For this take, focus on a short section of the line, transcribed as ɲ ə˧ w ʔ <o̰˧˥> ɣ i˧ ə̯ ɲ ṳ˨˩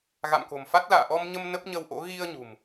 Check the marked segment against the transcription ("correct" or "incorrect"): correct